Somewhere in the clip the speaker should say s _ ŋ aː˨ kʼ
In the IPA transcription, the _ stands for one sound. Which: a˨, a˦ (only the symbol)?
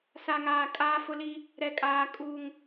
a˨